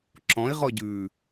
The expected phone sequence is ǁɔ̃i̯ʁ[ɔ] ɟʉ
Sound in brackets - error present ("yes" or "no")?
no